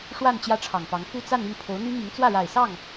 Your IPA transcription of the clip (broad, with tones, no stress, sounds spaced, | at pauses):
ʂ w a˥˧ n t͡ɕ j ä˥˩ ʈ͡ʂʰ ɑ˨˩ ŋ p ɑ˧˥ ŋ f u˥˧ t͡s a˥˧ n y˥˩ n pʰ o˧˥ ʊ̯ n̪ y˥ m i˧˥ ŋ t͡s w ä˥˩ ɻ a˨˩ ɪ̯ s ɑ˥˩ ŋ